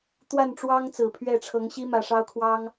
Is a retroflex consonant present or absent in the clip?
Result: present